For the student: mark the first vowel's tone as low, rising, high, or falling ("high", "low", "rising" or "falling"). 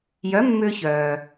rising